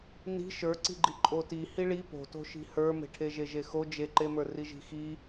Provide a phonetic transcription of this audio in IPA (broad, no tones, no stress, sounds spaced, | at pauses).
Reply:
n i̤ ʃ ə˞ ǀ i̤ ɡ͡ǃ i ǃʼ o t i h i ɭ i p o̤ t o̤ ʃ i̤ h ə˞ m e̤ ʈʰ e ʒ e ʒ e x o d͡ʒ e ǃ e m ə˞ r i ʒ i̤ x i